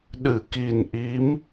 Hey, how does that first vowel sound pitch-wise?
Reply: low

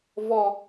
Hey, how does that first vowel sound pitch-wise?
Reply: high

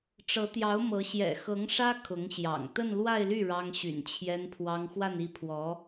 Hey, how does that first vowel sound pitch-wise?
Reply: rising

